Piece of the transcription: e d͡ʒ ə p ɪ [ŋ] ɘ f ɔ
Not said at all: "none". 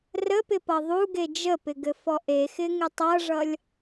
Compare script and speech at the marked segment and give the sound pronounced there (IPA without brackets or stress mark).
ɡ